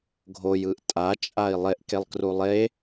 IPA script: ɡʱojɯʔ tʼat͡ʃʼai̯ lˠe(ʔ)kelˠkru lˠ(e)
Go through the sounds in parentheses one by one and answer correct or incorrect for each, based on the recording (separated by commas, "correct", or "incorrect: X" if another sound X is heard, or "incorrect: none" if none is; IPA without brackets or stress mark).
correct, correct